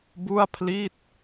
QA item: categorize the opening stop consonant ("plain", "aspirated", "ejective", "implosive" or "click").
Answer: plain